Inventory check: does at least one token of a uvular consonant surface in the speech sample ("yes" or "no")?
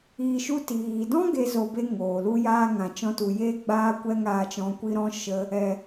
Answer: no